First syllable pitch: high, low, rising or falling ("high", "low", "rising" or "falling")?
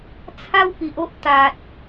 high